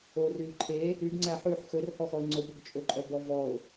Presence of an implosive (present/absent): absent